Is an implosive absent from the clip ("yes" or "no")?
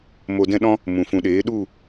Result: no